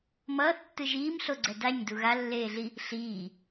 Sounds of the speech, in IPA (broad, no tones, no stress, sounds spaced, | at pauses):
m ʌː θ tː ɯ ʒ iː m ɬ o ɡ͡ǀ ɛ d a ɲ d u ɣ a lː eː ɮ i | ɬ iː